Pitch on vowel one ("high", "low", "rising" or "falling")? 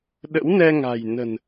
rising